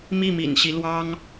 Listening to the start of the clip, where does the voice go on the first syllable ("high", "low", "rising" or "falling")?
falling